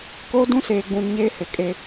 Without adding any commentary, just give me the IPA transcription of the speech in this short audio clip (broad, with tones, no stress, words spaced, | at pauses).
koː˦dũ˦ seː˨ɡ͡bũ˨n ɲeː˦hɪ˨ kʼe˦